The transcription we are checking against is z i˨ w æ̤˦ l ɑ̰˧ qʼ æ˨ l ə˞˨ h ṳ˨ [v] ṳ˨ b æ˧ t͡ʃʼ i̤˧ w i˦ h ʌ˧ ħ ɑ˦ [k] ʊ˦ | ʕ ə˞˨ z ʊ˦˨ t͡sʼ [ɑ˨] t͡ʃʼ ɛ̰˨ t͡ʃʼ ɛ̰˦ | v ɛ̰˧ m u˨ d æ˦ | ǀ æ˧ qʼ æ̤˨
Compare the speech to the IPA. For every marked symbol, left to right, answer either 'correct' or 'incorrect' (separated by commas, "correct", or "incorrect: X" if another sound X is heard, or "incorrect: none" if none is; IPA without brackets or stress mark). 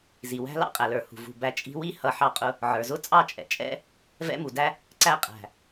correct, incorrect: qʼ, incorrect: ɑ˦˨